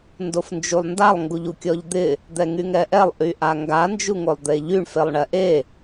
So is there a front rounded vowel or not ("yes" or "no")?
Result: yes